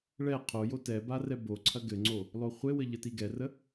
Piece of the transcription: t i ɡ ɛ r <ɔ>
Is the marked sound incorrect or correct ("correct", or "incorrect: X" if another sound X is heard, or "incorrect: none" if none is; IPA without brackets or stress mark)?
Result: incorrect: ə